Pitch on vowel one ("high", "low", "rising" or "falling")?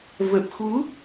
low